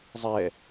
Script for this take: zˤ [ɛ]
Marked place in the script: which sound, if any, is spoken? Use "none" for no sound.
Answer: ɛ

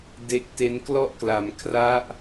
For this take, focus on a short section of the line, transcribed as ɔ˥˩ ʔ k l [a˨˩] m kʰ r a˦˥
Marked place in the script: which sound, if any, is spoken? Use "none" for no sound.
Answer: a˧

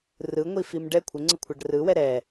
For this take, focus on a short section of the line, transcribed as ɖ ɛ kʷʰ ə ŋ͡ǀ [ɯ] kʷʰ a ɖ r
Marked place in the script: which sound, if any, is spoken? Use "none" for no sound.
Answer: ɯ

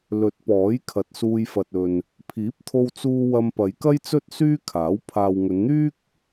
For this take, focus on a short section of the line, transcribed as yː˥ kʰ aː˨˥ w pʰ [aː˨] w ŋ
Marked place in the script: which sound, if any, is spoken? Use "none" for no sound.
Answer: aː˨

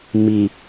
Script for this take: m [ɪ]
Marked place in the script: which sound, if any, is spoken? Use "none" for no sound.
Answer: i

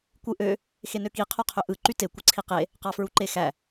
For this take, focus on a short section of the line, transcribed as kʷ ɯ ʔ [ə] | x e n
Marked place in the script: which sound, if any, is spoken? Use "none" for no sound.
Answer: ø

